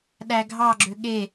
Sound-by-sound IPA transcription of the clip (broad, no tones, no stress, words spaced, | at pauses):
ɗæɡʱɑɡ͡ǁø ɠe